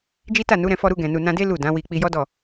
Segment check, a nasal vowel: present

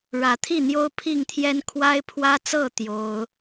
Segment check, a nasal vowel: absent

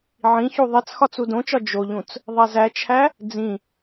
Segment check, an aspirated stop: present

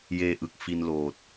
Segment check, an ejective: absent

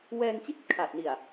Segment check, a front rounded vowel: absent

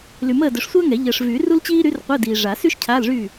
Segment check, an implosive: absent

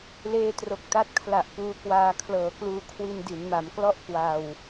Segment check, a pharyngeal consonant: absent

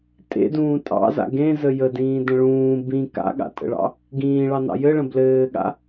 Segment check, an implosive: present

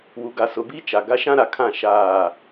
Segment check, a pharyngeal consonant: absent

